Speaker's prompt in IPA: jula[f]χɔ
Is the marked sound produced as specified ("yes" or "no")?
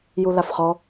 yes